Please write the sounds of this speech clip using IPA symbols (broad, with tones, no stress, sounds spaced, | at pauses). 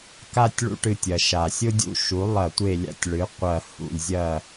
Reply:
k a˥˨ tʲ ɭ ṵ˦ ʈ ɨ˧˩ tʲ ɐ˩ ʃ a˩ sʲ ʊ˦ dʲ ṵ˦ ʃ u˩˥ lˠ ɐ˧˩˧ tʷ e˧˩ lʲ a̰˦ tʲ ɭ ɨ˩˥ qʷ ɐ˧˩ h ṵ˧˩ lʲ zʲ ɐ˥˨